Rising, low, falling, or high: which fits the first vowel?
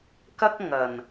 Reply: high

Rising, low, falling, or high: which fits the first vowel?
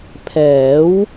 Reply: rising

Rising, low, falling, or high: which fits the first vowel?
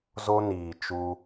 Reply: high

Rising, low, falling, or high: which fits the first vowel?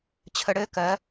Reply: low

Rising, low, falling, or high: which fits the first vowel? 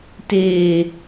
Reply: low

